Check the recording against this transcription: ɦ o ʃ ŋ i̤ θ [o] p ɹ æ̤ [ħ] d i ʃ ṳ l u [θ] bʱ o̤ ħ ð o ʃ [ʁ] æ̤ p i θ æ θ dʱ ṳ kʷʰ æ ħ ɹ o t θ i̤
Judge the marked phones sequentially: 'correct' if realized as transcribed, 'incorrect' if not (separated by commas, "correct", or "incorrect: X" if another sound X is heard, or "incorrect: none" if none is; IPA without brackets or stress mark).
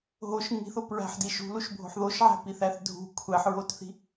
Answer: correct, correct, incorrect: ʃ, incorrect: ʕ